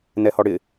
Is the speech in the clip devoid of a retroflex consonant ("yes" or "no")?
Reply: no